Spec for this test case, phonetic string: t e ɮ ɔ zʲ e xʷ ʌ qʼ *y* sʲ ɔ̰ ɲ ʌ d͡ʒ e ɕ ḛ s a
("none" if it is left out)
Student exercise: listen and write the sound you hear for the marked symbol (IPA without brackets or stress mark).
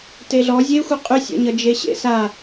y